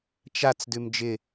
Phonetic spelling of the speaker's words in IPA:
t͡ʃ a t͡s d ʉ m d͡ʒ ɪ

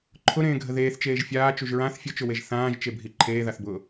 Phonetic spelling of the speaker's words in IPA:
ǃʰ ʊ ɾ ẽː ɡʱ ə ð eː θ t͡ʃ eː ʒ fʲ aː t͡ʃ u ʒ ɹ ã θ fʲ ʊ t͡ʃ ʊ w e ʒ θ ãː ʒ t͡ʃ e bʱ i ǃʰ eː ð a θ b ʊː

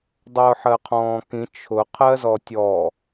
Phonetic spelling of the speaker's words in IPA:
dˤ ʊː ħ ɜ qʰ ɔ̃ː k ĩ t͡ʃʰ ʊ qʰ ɜ z ɔ tʲ ɔ

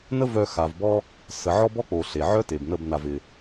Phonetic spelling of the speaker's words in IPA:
n ə˦ v œ˧ x a˨ v b ɔ˦ | s ə˨ ʕ ɔ˦ b ɔ˦ k͡p o˨ ɬ e˨ ʕ œ˦ t e˨ b n ə˦˨ b n a˧ v ɪ˧

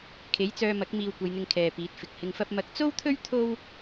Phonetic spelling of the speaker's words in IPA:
kʰ e˨˥ j t͡s œː˧ m ɐ˨˥ k̚ m iː˧ w kʷ ɐ˨˧ j n̪ ɪ˧ ŋ kʰ ɛː˨ p iː˨˥ t̚ f ɪ˨ k̚ h ɪ˧ ŋ f ɐ˥ p̚ m ɐ˨˥ k̚ t͡s o˥ w t̪ʰ ɵ˥ ɥ t̪ʰ o˥ w

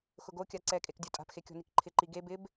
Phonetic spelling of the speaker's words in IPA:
x ʊ ɡ o kʲ a ǀ ɛ kʼ e k dʲ o tʼ a̤ p x e kʲ ɔ̤ n i k ǃʰ ɪ ǃ i ɡ e b ɪ b

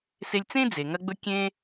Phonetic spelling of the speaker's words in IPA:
s e˧ lʲ t͡s ẽ˥ d͡z e˩ ŋ ɐ˧ ɡ͡b ɵ˧ kʲ ẽ˧

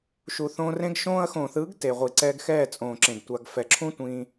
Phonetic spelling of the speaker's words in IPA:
ʃ u˨ θ õː˧ r ẽ˦ ɡ ʃ õː˧ ɐ̯ x õː˨ θ ɯː˨˦ ɡ t e˨ ʁʷ i˨ ǀ ɛː˧ ɡ x ɛː˦˨ t͡sʼ õː˨ ǁ ẽ˨ ɡ tʷ a˧ ɡ f ɛ˨ ǁʰ ũ˦ tʷ ĩː˧

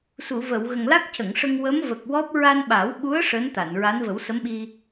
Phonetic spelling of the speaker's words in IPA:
s u˨˩˨ v ə˨˩˨ w ɣ ə˨˩ ŋ l a˦˥ k̚ c ə˨˩˨ ŋ ʂ ə˧ ŋ w ə˧˥ m v ə˨˩ k̚ w ɔ˦˥ p̚ ɹ a˧ n ɓ a˨˩˦ w ɓ u˧˥ ə̯ ʂ əː˧˥ n t̪ a˨˩˨ n ɹ a˧˥ n v ə˨˩˦ w s ə˧˥ m ɓ i˧

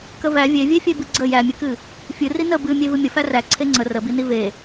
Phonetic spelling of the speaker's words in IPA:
k ə v æ vʲ e vʲ e fʲ e b ɨ ɡ͡ǀ ə j æ mʲ ɨ k ɨ | fʲ ɨ r i n ə b ɨ mʲ e v ɨ mʲ ə f æ r æ ǀʰ e ŋ͡ǀ ə r ə b i n i v e

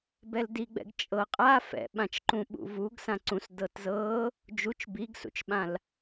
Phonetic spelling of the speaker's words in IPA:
b ɛ l d i ɡ͡b ɛ̰ ɡ t͡ʃʼ ɤ qʼ a f ɛ̰ ɓ ã t͡ʃ ǃ ũ ɓ ṵ v u ɡ s ã ǀ ũ s d ɤ t z ɤ | d͡ʒ u t͡ʃ b i ɡ s ṵ t͡ʃ ɓ ã l

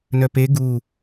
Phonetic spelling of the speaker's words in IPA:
n œ p e ɡ u

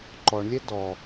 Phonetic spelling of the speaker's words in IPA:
ǃ ɔ ɳ lʲ ɛ d ɔ

